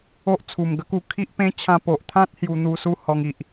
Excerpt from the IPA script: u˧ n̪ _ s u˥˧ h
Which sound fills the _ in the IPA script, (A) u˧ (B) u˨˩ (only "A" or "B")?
A